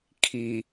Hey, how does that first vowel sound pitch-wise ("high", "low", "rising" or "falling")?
low